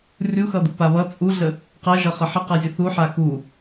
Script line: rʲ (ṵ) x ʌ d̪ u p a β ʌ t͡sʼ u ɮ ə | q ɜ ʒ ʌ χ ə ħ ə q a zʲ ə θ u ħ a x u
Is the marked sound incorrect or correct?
incorrect